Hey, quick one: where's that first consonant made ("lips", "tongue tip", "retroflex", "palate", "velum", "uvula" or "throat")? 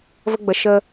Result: lips